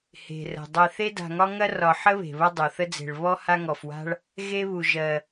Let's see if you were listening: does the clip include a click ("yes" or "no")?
no